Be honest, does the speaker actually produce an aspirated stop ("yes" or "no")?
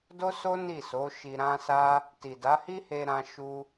no